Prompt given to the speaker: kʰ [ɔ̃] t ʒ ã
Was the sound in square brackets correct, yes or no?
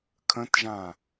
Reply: no